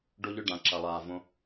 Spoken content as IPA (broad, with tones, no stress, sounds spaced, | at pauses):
ɖ o˨ ʎ ɵ˨ ɖ ã˩ ǁ ɐ˩ lˠ aː˩ v õ˩